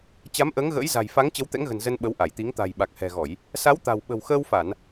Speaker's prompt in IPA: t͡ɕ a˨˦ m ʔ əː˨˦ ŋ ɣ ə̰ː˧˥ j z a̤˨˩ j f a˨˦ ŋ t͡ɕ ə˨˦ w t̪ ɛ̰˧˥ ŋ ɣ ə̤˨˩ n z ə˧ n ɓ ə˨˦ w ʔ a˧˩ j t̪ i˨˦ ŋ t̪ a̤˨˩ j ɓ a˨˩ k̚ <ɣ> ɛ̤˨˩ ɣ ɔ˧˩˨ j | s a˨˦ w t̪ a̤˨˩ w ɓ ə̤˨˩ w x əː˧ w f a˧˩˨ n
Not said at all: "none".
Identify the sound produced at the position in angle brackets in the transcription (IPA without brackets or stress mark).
h